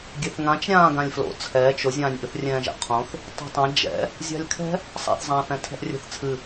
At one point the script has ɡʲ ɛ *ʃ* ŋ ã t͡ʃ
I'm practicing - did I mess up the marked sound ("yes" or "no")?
yes